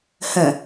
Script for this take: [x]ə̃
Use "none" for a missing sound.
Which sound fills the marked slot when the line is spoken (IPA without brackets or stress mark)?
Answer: h